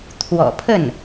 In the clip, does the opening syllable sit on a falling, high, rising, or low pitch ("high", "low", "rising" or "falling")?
low